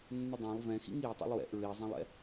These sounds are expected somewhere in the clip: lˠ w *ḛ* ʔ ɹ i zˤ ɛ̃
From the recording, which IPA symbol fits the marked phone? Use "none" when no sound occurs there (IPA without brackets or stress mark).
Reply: ɛ̰